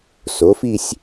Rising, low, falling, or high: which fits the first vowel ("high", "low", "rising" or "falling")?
rising